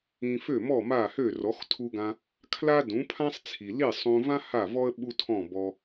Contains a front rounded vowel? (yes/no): yes